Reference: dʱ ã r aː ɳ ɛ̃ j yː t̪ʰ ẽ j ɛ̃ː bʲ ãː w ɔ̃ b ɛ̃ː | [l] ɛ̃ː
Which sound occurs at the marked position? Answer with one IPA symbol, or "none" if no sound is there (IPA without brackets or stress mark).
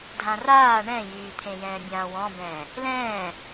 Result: l